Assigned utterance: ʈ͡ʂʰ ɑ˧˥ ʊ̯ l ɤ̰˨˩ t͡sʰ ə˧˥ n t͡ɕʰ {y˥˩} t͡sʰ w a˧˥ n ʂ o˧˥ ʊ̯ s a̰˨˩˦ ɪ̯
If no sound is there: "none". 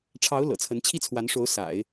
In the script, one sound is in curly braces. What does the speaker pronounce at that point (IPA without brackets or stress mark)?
i˥˩